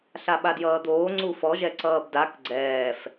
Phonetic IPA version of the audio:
ɬaɓadjʌːd̪oː ŋ͡ǀufɔʒɛ ǀʌːbdak ɡ͡ǀɛːf

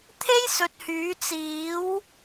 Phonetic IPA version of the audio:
t̪ʰe˥jsɵ˨t̚hyː˨˧ t͡siː˨˧w

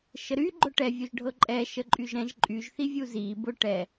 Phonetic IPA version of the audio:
ʃəɾy ɡ͡ǃʊʈɛ vʲuʒɖʱɤǃʼɛ ʃəǃʼyʒɾɛ̃ʒ ǃʼyʒ θivʲuzi bʊ ʈɛ

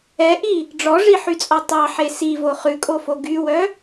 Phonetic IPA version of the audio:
ɛʔi | ɖ͡ʐɔʐiħyt͡sʼɔ tˤɑħe sivo χʉkʼofo ɡywœ

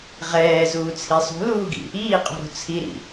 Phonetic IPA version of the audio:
ʁɛːzuːt͡sʰi sˤṳluːɡḭ | iːqʼṳɾo̤ t͡sʰiɾḭ

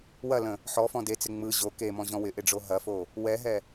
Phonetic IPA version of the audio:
wɐlə̃ | ħɔfɔ̃ det͡sɪ ŋ͡mɯ ʑo kemɔ̃ʑɔ̃ wɪʔɪɖ͡ʐo ɦɐfo | wɛɦɛ

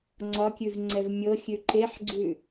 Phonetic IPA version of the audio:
ŋ͡ǀɒkʲʉv ŋ͡ǀɛvmʲɤxʲʉ ǃeħɡ͡ǀʉ

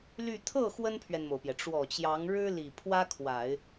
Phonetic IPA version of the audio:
ly˥˧ t̪ʰɤ˥˩ xwə˥npʰɥɛ˨nmo˩ʊ̯pjɛ˩ ʈ͡ʂwɔ˨˩t͡ɕjɑ˧˥ŋɻɻ̩˥ li˨˩pʰwä˥kʰwa˨˩˦ɪ̯

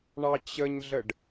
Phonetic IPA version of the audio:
ɳɑt͡ɕəɲɮəɖ

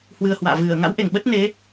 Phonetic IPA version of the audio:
hwɨ˧ə̯hwa̰ː˧˨ vɨ˧˩ə̯ ŋa̰˧˥wʔe˧˩ŋɓə˦˥t̚ne˨˦

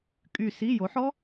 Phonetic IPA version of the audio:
kʼy˧˩si˧˥˧ jo˩˥ħɔ˥

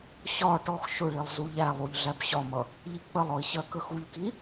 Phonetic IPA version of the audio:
ɕɒ ʈɔx ʃʊɭilˠ zuʎælˠuʎ ɮæbɕɒmʌ | ʎik͡pəlˠɔi̯ ɕɜkəxuʎki

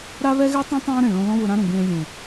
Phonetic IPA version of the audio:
ɾa˦βɛ˦ɣɛ˦tˤõ˦ tˤãː˦ɾẽ˨ ɭõ˧lɔ̃˦ βʊ˧ɾã˦ɾũ˨ ɡẽː˧ lʲẽ˨

